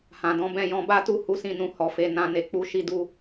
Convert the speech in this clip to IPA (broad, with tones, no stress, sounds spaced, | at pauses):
h ã˨ d ɔ̃˨˦ b ɛ̃˦˨ j ɔ̃˧ b a˦ t u˦˨ h u˨˦ s ĩ˦˨ n ũ˧ h ɔ˨ f e˧ n ã˧ n e˨ k͡p u˧ ʃ i˧ d u˧